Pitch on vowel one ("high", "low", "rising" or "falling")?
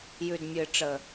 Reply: low